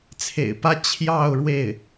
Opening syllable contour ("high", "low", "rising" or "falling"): low